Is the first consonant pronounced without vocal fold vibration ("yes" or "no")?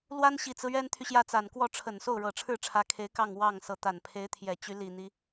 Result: no